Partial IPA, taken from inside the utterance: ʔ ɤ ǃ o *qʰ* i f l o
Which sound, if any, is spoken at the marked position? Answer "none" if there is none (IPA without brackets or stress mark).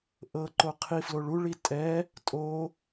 qʰ